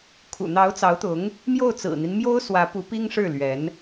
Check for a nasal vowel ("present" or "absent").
absent